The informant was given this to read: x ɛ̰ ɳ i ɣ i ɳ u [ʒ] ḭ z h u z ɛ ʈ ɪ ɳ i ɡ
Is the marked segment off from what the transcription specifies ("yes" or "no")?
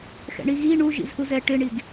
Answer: no